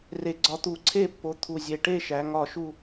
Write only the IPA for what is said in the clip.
r e˨˩ ɡ͡ǀ ɒ˨˦ t̪ u˨˩ ǀʰ e˥˧ pː o˨˦ t̪ʰ u˨˩ zʲ e˨˩ ʈ e˥˧ ʃ æ˨˦ ŋ ɒ˥˧ ʃ u˥˧

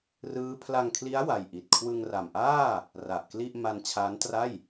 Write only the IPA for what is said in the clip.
r ɯː˦˥ pʰ l a˧ ŋ kʰ l i˦˥ a̯ w a˧ j ʔ i˨˩ t̚ kʰ w ɯ˧ ŋ r a˨˩ m ʔ aː˥˩ | r a˨˩ ʔ k l i˥˩ ʔ m a˧ n t͡ɕʰ aː˦˥ n t r a˥˩ j

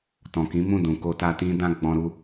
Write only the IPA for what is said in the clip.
t ɔ̃˨ k ĩ˨˦ m ũ˦˨ d ũ˨ k o˧ t a˧ t ĩ˦ d ã˦ ɡ͡b ɔ̃˧ ɾ u˧

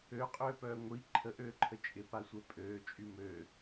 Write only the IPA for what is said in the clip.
ø qʼ øː p œː ŋʷ i ǃʰ ə ʔ øː ǃʰ ə t͡ʃʼ ɪ p a sʷ ɛ pʼ øː t͡ʃʼ y m ø

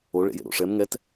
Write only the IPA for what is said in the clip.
o ɭ ḛ j ḛ ɾ o̰ ʂ ɛ m ŋ ɛ t

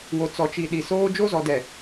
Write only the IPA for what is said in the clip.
w o˨ t͡s ɔ˨ t͡ʃ i˨ ɗ i˨ s oː˦ d͡ʒ o˦ z ɔ˨ d ɛ˨

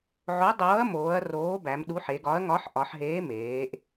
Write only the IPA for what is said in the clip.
ʕ o˨˥ dˤ oː˨˥ ɐ̯ m oː˩˧ ɐ̯ r oː˨˥ b æ˩˧ m ɗ u˨˥ ħ e˩˧ ɡ ɒ˨˥ ɐ̯ ŋ ɒ˨˥ ħ ʔ ɒ˩˧ ħ ɦ eː˨˥ m eː˩˧ ʔ

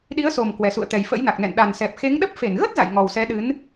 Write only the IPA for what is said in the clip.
ɗ i˨˦ ə̯ s o˨˩ m k w ɛ˨˩ s ṵ˧˨ ə̯ t̪ ɛ˨˩ j f ə̰˧˥ j n a˨˩ k̚ n ɛ̰˧˨ n ɗ a˨˩ n s ɛ˨˩ p̚ x e˨˦ ŋ ɗ ə˦˥ p̚ f e˧˩ n ɣ ə˦˥ t̚ z a̰˧˨ j ŋ ɔ˨˩ w s ɛ˨˦ ɗ ɨ˨˦ n

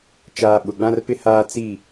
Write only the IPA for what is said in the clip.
t͡ʃ aː˨ ɓ ʊ˨ ɡ͡b ã˦ r p ɪ˦ h aː˦ t͡s i˦˨

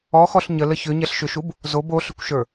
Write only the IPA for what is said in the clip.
ɔ x ɔ ɬ ɲ ə l ə ç ʏ ɲ ɛ ɬ ʃ ʏ ʃ u b | z o b o ɬ ʏ kʷ ʃ ə˞

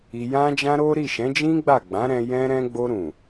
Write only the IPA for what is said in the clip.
i˧ j ã˦ d͡ʒ ã˦ ɾ o˦ ɾ i˦˨ ʃ ɛ̃˨˦ d͡ʒ ĩ˦ ɡ͡b a˦˨ ɡ͡b ã˨˦ ɾ ɛ̃˧ j ɛ̃˦ ɾ ɛ̃˧ ɡ͡b o˧ ɾ ũ˨

